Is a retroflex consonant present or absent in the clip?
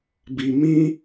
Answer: absent